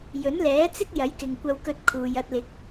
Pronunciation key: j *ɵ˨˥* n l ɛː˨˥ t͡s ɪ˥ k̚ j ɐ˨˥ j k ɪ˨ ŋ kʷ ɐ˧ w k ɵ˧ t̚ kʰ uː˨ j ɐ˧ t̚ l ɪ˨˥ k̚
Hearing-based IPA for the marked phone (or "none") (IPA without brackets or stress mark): ɵ˨˥